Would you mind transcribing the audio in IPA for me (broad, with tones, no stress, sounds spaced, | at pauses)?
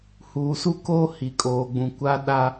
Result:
h uː˨ s u˦ k oː˦ h i˨ kʼ oː˨ ɡ͡b ũ˨ kʷ a˦ ɗ a˦